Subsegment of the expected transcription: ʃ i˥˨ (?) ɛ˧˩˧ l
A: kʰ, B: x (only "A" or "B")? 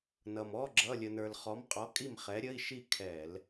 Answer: A